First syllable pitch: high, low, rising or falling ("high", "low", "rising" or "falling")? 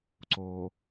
low